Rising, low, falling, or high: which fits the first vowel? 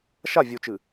falling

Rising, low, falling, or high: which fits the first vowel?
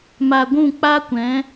low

